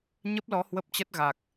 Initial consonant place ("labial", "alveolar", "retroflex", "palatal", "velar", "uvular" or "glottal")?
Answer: palatal